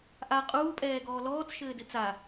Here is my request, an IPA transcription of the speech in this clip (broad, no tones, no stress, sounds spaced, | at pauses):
ʔ a qʼ uː pʼ ɛː ɡ ɔː l ɔː t͡s ʃ ɘː d ɘ t͡s a